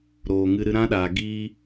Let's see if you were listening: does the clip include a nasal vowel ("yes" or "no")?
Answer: yes